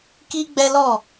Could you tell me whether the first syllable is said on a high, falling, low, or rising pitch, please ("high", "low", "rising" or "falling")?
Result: high